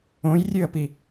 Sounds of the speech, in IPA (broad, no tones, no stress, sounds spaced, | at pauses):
õ j rʲ ʉ ə̯ p i